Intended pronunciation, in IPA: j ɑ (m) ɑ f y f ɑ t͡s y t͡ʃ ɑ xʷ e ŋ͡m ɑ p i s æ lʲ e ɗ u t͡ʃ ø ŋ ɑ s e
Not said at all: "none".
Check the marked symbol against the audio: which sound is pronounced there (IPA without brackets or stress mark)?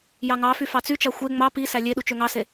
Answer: ŋ